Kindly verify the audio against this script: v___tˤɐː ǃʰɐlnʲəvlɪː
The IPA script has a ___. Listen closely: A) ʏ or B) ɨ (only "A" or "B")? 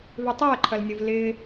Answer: A